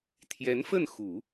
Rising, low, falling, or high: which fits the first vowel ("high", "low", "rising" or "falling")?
rising